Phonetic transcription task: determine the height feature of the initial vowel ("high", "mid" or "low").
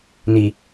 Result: high